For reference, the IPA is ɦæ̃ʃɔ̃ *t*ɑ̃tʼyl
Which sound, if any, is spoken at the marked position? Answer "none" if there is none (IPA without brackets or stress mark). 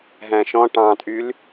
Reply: ʈ